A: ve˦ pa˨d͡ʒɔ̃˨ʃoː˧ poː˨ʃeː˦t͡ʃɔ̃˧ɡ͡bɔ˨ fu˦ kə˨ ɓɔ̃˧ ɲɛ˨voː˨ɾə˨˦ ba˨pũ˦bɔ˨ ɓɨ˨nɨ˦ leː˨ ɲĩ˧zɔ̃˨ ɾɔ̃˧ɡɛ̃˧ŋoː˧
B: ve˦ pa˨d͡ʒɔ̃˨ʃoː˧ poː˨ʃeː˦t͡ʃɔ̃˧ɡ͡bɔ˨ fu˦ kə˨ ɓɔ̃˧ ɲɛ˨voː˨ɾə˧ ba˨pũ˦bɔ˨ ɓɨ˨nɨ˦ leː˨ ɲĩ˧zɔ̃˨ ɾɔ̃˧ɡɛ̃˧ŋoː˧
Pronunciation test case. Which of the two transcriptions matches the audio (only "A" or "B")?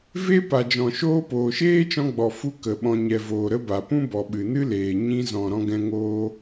B